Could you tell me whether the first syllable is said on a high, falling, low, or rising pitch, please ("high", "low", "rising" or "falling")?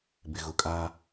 low